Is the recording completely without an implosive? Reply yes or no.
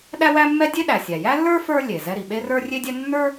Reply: no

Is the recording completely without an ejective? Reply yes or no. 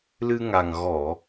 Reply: yes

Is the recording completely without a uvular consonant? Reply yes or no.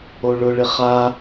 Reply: no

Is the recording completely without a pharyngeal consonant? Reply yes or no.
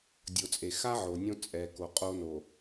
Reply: no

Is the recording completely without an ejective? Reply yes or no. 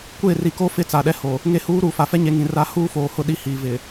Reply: yes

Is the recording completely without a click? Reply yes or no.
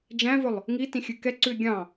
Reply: no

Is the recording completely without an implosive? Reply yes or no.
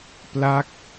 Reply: yes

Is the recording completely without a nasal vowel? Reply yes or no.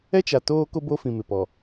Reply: no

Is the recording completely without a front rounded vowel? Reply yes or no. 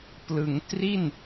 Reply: yes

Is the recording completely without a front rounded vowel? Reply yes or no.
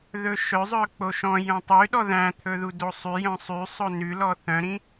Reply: no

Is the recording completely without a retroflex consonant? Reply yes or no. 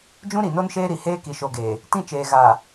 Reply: yes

